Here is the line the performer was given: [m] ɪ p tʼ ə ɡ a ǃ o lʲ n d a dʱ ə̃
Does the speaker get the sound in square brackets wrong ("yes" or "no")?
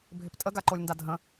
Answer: yes